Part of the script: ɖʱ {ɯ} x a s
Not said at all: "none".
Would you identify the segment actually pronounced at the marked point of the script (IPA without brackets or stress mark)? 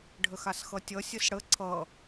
ə